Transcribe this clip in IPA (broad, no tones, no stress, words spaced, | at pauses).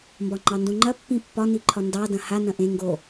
mbɒŋ͡ǃɑndõŋ͡ǃɐ pːĩpːɒ niǃʰɒndɑ dɐ̃ha nɐ̃ʔẽ ŋɡo